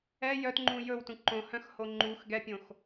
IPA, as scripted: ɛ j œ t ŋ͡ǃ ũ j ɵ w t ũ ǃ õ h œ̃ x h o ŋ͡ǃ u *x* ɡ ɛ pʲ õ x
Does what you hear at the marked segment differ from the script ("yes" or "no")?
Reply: no